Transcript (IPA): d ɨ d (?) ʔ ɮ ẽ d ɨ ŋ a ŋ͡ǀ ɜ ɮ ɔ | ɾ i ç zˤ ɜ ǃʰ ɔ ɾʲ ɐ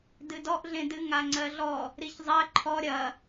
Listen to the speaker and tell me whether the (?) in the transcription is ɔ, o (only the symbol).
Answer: ɔ